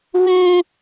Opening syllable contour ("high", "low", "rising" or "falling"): high